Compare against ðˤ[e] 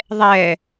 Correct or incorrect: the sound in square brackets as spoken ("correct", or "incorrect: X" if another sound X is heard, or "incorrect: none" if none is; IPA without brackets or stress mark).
incorrect: ɛ